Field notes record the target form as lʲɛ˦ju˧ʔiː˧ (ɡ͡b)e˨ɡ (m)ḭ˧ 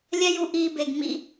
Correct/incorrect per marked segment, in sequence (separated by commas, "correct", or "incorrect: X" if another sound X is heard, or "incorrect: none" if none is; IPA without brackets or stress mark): incorrect: b, correct